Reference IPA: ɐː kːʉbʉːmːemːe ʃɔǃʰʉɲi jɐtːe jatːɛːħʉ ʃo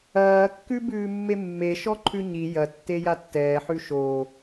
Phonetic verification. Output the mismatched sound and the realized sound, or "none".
none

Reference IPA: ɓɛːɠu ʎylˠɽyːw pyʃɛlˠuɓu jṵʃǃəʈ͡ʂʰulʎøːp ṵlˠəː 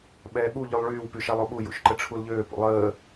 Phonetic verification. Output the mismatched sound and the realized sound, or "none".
ɽ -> ɭ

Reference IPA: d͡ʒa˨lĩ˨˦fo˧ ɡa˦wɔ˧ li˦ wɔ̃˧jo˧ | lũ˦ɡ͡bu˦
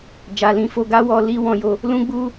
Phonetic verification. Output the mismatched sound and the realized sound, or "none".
none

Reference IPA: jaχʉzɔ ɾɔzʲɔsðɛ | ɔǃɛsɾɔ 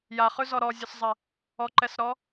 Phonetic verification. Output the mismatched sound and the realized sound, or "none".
ð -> zˤ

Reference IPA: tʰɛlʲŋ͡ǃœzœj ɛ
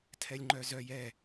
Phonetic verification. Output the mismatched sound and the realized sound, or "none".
none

